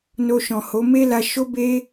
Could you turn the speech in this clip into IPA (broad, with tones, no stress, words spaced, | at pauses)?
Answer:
no˧ʃɔ̃˨ho˨˦ me˦la˧ ʃo˦be˦